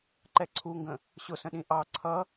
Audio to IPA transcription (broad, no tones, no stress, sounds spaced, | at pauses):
ǃ ɛ ǀʰ u ŋ ɡ ə̃ | ɕ ʊ s ə̃ ɗ ĩ ʔ ɑ ǀʰ ʌ